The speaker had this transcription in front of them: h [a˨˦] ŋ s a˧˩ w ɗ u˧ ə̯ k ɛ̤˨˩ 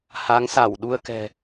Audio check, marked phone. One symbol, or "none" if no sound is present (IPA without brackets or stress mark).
a˨˦